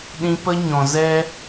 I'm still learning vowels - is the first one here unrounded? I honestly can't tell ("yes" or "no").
yes